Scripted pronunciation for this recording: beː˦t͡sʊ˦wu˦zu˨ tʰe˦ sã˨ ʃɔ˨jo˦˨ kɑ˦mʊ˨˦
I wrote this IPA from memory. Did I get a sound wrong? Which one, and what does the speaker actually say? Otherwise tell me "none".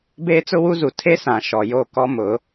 ɑ˦ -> ɔ˦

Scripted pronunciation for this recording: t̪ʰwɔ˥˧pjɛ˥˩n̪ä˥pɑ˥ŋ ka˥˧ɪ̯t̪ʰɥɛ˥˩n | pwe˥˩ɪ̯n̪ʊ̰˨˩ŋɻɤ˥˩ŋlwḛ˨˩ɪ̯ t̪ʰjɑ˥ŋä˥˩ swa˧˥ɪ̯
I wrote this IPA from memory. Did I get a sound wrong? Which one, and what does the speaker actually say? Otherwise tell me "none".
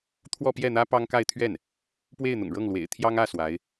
none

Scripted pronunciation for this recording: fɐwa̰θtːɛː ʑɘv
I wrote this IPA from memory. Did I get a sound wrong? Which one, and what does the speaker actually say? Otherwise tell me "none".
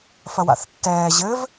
none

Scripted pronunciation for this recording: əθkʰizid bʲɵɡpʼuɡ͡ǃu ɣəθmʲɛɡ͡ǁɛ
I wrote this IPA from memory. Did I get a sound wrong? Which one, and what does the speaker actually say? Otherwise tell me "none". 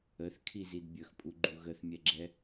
ɡ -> x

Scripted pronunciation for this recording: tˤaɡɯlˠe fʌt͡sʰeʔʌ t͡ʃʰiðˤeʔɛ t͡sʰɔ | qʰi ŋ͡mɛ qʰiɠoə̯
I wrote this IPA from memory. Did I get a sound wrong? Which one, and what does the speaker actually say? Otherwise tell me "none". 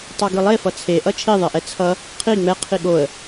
ɔ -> ʌ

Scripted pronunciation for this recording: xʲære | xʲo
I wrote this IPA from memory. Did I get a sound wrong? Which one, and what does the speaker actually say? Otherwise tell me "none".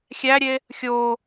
r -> ɾʲ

